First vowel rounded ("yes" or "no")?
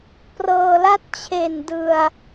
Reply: no